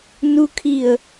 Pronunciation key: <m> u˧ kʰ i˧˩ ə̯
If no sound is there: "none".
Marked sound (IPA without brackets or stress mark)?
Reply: n